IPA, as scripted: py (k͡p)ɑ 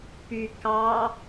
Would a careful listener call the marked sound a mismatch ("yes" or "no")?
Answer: yes